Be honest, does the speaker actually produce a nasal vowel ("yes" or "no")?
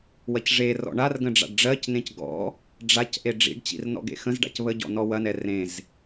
yes